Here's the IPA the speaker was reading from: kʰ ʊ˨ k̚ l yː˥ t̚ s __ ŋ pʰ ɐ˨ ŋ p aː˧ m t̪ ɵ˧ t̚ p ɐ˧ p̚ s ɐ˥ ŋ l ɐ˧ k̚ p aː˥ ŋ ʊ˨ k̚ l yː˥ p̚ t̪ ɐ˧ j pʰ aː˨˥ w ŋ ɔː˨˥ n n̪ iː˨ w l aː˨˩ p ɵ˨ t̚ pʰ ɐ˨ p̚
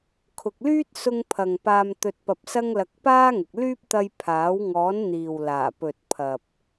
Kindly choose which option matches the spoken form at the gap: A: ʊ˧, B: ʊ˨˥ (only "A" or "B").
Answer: A